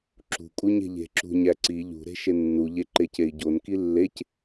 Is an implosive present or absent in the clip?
absent